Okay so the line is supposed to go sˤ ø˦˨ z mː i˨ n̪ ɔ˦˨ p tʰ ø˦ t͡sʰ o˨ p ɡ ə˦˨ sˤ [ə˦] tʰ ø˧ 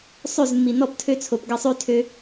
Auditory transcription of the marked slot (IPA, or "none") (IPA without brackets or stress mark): ø˦